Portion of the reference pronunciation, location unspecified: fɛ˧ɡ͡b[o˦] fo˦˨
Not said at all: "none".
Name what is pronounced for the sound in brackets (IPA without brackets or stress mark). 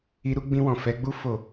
u˦